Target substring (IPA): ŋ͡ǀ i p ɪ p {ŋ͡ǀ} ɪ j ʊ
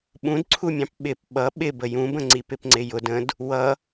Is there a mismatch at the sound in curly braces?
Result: no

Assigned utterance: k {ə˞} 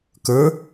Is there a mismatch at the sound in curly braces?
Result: no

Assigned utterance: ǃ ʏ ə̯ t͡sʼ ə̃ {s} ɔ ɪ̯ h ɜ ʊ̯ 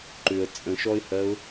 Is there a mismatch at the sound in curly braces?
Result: yes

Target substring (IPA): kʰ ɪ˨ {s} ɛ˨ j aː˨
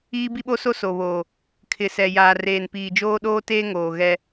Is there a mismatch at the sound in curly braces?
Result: no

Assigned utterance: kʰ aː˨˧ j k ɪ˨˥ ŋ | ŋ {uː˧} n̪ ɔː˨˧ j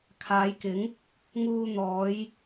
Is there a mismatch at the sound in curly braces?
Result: no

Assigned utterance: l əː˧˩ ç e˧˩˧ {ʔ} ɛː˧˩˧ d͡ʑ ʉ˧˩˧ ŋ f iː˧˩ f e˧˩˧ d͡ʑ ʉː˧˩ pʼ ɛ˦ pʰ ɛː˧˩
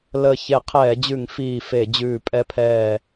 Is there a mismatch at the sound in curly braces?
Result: yes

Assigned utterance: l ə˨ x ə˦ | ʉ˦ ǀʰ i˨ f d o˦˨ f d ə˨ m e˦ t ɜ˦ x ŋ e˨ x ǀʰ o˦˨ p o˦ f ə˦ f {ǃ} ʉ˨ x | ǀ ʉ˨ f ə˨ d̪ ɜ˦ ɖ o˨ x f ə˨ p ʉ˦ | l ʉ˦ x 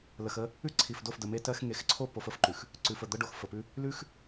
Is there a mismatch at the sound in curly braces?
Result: no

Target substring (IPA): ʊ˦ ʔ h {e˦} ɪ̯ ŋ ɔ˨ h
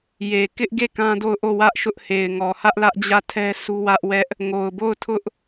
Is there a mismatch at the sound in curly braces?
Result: yes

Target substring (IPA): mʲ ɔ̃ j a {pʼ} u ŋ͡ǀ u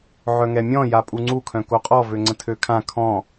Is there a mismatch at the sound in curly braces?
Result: no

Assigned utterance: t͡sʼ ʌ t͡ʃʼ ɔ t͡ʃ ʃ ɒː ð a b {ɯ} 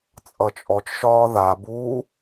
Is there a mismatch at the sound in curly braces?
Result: yes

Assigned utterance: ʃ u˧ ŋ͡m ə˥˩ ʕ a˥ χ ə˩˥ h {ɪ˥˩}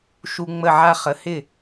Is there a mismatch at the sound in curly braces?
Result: no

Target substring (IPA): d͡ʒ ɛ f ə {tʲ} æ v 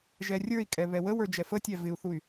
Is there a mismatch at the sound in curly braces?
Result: no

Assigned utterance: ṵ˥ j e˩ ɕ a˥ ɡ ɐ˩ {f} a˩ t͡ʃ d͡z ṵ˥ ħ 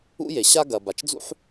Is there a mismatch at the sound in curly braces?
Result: yes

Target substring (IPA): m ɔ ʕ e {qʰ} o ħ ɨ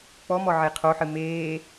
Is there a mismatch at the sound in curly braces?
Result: no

